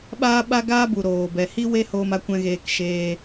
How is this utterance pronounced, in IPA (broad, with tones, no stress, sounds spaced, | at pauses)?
ɓ aː˦ ɓ a˦ ɡ aː˦ b u˨ ɾ oː˨ b ɛ˨ h i˦ w e˦ h oː˧ m a˦ kʷ ɛ̃˦ ɣ eː˧ k ʃ eː˧